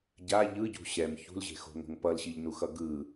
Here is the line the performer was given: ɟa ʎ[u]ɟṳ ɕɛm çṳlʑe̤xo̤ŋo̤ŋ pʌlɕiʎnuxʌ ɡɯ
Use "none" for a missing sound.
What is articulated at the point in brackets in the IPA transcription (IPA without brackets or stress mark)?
ɯ